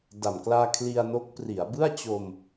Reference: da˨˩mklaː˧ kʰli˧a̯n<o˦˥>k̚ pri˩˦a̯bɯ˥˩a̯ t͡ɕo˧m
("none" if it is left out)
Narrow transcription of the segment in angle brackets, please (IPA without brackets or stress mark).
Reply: o˦˥